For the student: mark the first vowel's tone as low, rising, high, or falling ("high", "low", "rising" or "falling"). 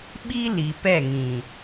high